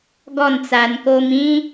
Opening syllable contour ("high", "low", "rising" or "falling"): falling